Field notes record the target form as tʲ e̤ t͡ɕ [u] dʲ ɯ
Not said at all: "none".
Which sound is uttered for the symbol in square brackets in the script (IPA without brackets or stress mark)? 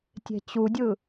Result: u